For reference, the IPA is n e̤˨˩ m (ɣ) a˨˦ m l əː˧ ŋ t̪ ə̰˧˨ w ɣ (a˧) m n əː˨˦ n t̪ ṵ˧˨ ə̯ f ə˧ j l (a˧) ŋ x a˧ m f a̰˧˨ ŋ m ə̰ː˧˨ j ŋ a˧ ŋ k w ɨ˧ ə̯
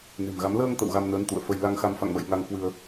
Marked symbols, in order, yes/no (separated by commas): yes, yes, yes